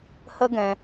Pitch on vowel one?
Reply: high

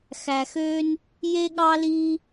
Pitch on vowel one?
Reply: low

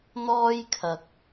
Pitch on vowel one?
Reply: high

